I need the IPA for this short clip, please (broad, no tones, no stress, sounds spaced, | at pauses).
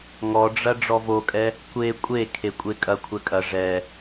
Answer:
ŋ ɔ ɖ͡ʐ ɐ ɖ͡ʐ ɔ v o kʼ ɛ | kʷ e kʷʼ e kʰ e kʷʼ e kʼ ɐ kʷʰ ɛ kʼ ɐ ʐ ɛ